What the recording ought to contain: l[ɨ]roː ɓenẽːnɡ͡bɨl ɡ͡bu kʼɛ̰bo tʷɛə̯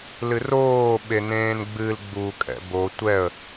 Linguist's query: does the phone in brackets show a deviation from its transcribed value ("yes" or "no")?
no